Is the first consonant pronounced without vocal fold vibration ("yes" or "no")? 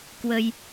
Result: yes